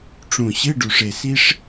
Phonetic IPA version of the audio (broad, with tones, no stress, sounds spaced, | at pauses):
ʈ͡ʂ ũ˨˩ ɕ ɨ˧˥˧ ɖ u˨˩ ʂ e˨˩ s i˥ ʂ